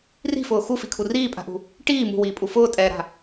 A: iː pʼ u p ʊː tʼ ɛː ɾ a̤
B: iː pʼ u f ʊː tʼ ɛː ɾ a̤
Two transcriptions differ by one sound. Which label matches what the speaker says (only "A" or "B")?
B